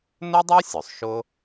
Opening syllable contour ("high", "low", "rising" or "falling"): high